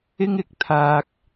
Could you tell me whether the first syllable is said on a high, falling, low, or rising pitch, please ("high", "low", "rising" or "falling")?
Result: high